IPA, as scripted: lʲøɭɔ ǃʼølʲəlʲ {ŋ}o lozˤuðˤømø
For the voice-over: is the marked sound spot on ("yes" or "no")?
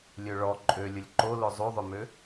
no